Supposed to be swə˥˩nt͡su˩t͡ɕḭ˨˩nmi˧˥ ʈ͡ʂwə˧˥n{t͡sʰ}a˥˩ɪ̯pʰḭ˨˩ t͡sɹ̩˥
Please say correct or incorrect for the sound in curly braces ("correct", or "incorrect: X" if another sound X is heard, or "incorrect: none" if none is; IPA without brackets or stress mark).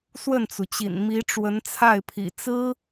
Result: correct